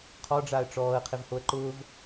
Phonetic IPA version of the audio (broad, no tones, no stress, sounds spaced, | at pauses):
qʰ ɔ ɖ͡ʐ aː ə̯ ʈ͡ʂ ɔː ə̯ qʰ ɪ v h o ə̯ ǃ ʊː v